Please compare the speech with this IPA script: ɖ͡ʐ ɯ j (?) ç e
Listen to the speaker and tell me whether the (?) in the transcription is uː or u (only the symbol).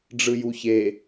u